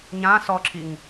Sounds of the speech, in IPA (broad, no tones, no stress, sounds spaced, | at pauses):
ɲ ã s ɔ ǁʰ i ŋ